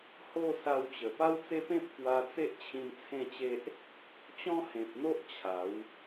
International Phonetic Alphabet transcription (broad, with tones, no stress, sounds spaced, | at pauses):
h o˥˧ s a˧ w t͡ɕ ə˨˩ p a˦ w t͡s e˦ p ẽ˦ p̚ k w a˧ t͡s e˦ ʔ t͡ɕʰ ĩ˧ n t͡sʰ ẽ˥˧ t͡ɕ e˦ ʔ | t͡ɕ ɔ̃˦ h ẽ˨ p̚ n̪ o˦ ʔ t͡ɕʰ a˨˦ w